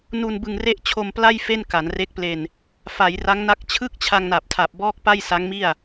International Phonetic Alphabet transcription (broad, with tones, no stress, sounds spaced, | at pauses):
n u˧ n b ɯ˧ ŋ r e˥˩ ʔ t͡ɕʰ o˧ m p l a˥˩ j f e˥˩ n k a˩˦ n r e˦˥ k̚ p l e˧ n | f a˩˦ j r a˦˥ ŋ n a˦˥ k̚ t͡ɕʰ ɯ˥˩ k̚ t͡ɕʰ a˧ ŋ n a˨˩ p̚ tʰ a˨˩ p̚ b ɔː˥˩ k̚ p a˥˩ j s a˦˥ ŋ m i˥˩ a̯